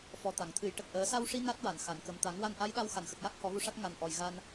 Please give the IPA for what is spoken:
f ɔ˨˩ t̪ a˨˩˨ ŋ t̪ʰ ɨ˨˩˦ j ʈ ə˨˩ k̚ ʔ əː˨˩˦ s a˧ w ʂ i˧ n a˦˥ t̚ w a˨˩˨ n x a˨˩˨ n k ə˨˩ m t̪ a˨˩˦ ŋ w a˧ n ʔ a˧˥ j ɗ a˧ w x a˨˩˨ n x ə˨˩ k̚ j a˦˥ k̚ h ɔ˨˩˦ ɣ u˧ ʂ a˦˥ t̚ ŋ a˨˩ n ʔ ɔ˨˩ j ɣ a˧ n

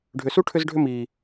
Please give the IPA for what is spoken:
ɖʱ ʏ˨ s u˦ ʈʰ ʏ˦ z ɖʱ ʏ˦ m iː˨

